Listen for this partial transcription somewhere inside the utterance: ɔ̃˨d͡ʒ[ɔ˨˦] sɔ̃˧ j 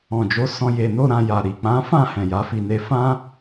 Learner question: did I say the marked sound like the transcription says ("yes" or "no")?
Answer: no